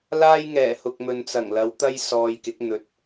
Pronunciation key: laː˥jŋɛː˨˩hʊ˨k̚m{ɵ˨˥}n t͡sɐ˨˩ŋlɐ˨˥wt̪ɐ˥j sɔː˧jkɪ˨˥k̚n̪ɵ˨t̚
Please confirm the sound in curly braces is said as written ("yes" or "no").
no